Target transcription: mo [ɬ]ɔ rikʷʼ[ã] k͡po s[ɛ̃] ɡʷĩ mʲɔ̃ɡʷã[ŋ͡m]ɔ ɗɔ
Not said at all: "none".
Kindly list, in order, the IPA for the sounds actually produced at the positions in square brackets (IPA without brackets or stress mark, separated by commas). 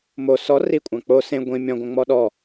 s, ã, ẽ, ŋ͡m